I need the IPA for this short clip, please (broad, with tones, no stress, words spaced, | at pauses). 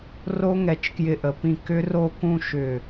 ro˥ŋɛ˧˩t͡ʃ kjɪ˧ʔə˩˧pĩ˧˩ kʏ˥ro˥˧ kũ˥˧ ʃʏ˧˩